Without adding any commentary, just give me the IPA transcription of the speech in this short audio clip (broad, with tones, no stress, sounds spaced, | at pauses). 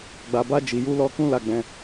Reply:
ɡ͡b a˧ b a˦ d͡ʒ i˧ j u˦ l ɔ˦ k ũ˦ l a˧ ɡ͡b ɛ̃˧